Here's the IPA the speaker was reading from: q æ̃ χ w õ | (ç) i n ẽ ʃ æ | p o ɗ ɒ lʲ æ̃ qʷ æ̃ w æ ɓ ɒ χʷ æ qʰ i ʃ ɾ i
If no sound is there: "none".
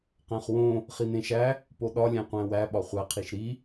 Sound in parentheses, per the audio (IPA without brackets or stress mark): χ